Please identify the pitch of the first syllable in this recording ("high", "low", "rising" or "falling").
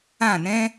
falling